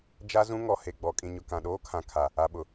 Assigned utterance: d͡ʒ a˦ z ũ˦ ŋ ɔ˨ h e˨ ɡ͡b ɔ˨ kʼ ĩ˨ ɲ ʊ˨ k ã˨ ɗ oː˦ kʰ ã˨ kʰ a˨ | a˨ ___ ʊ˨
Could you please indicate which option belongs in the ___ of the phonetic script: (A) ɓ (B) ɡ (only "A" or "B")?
A